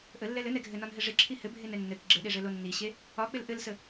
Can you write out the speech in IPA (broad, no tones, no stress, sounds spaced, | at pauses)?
ʔ ə lː ɛ l ɘ n ɛ ɡʱ ɘ n ɒ n ɦ ɘ ʐ ɪ ǁʰ i h ɘ bʱ e n ɛ nː ɘ k ɡ͡ǁ ɘ ɗ e ʐ ɘ l o nː i ɕ e | ɒ k͡p ɪ l ʔ ɘ l s ə